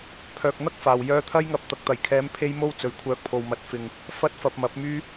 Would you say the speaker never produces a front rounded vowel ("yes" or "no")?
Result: no